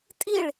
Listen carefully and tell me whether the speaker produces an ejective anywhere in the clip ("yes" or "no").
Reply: yes